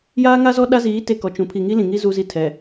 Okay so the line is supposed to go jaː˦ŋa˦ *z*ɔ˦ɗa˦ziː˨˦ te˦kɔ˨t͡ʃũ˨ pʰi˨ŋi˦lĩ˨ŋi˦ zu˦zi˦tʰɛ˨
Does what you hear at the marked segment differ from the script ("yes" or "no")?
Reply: no